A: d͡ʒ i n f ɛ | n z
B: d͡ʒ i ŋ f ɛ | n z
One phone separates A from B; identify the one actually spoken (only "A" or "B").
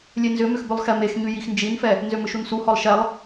A